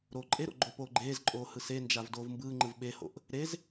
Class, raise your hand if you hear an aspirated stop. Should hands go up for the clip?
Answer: no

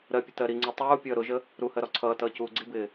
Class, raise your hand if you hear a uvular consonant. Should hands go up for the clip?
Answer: no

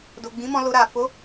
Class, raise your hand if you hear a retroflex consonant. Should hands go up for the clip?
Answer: no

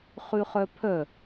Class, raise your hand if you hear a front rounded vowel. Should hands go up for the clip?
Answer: yes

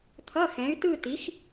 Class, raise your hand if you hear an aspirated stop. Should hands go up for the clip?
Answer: yes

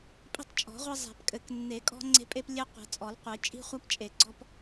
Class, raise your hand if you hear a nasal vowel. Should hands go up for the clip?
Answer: no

